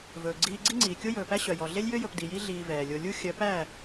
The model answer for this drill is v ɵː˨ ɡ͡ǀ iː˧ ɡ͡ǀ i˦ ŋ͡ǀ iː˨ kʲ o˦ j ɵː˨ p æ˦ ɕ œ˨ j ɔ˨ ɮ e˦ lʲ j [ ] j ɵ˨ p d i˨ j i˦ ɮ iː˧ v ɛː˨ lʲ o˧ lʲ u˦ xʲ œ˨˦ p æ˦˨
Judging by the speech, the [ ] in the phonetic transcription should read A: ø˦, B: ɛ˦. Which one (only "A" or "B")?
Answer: A